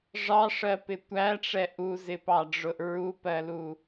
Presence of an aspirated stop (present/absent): absent